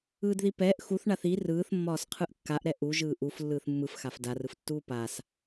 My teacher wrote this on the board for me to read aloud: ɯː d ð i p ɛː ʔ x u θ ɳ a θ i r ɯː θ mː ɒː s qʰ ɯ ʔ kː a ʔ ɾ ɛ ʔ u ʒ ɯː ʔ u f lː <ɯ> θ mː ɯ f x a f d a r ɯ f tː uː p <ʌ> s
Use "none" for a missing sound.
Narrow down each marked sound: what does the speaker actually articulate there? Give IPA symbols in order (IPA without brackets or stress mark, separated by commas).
ɯː, a